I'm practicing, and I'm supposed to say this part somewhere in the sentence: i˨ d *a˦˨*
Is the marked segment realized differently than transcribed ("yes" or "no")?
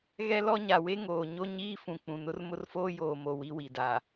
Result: yes